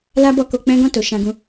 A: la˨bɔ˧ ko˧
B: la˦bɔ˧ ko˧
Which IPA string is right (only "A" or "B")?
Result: B